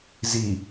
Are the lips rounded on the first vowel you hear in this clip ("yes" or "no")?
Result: no